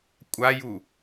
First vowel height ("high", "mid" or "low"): low